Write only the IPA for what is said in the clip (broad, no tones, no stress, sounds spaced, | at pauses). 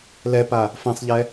l ɛ p a | f ɛ̃ sˤ ʎ ɛ